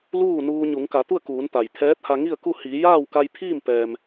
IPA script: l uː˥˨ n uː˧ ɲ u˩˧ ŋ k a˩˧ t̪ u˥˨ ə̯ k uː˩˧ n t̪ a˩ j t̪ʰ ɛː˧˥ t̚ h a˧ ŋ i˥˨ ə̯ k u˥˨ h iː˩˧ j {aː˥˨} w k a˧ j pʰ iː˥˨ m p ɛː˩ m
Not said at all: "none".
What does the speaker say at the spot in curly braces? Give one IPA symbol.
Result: aː˥˨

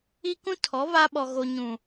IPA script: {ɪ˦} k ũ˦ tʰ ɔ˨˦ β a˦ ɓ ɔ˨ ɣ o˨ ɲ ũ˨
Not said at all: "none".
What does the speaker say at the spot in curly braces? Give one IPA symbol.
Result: i˦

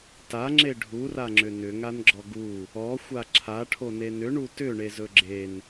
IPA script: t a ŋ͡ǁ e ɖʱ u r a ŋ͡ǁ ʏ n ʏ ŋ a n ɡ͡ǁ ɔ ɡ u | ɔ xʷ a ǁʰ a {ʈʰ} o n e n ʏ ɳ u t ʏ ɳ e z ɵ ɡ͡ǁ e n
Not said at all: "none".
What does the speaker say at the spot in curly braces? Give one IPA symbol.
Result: ʈʰ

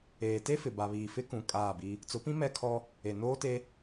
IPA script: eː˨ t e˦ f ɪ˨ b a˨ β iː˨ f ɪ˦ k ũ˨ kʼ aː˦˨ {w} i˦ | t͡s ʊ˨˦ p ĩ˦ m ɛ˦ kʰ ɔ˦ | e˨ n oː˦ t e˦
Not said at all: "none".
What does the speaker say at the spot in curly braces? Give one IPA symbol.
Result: b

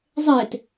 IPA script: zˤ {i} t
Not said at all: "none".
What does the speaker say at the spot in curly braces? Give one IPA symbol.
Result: e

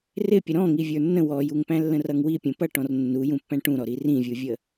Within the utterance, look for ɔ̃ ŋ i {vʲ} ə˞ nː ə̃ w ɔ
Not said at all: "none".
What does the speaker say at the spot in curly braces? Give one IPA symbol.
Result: vʲ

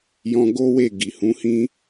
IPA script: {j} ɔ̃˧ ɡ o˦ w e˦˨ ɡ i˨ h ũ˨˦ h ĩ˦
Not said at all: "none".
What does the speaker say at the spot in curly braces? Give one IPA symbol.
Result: j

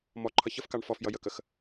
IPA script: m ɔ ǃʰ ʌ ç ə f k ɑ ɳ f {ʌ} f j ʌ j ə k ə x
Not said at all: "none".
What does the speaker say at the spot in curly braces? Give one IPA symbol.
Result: ɔ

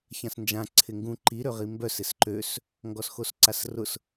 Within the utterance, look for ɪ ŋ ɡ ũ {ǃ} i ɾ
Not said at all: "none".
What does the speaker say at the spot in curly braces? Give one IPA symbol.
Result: ǃ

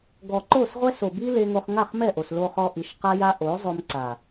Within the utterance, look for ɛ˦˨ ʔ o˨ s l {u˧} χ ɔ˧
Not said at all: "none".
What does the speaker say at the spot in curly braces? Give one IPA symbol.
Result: o˧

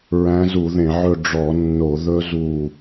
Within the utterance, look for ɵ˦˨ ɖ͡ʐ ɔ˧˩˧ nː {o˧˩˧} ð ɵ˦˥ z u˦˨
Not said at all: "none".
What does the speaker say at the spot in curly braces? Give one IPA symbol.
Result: o˧˩˧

